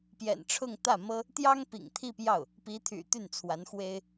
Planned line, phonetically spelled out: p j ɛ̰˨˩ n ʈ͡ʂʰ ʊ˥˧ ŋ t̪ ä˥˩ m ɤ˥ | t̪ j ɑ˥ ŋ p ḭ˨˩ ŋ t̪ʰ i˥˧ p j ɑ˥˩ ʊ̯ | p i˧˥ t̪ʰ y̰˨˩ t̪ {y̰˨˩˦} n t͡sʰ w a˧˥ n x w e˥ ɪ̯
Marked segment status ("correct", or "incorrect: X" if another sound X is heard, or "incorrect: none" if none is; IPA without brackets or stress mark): incorrect: y˥˩